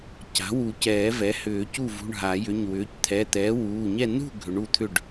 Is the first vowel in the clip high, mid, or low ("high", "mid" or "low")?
low